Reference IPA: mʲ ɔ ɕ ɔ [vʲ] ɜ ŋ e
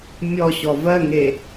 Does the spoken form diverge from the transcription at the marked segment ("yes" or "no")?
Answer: yes